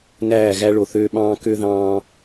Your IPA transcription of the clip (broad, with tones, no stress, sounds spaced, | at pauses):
n æː˦˨ ɣ æ˦ ɭ o˨ θ øː˦ ɓ ɑ̃ː˦ k ø˦ ð ɑ̃ː˦